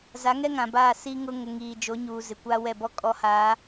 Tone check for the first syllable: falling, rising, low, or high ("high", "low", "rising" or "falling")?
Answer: rising